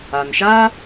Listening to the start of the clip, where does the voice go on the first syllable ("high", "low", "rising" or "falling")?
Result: low